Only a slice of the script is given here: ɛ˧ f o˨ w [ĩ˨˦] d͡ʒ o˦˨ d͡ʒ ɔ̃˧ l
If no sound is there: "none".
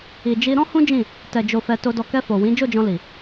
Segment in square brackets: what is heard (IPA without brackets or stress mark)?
ĩ˨˦